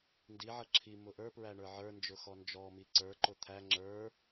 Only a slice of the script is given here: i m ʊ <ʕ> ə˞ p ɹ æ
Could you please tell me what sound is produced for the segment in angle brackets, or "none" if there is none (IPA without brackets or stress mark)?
ʔ